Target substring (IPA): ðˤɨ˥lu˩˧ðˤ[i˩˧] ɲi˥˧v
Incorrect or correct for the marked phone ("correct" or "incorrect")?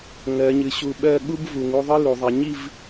correct